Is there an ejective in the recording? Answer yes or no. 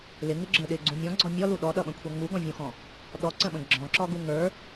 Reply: no